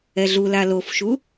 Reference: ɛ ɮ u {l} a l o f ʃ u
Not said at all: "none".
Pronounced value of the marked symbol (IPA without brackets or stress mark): l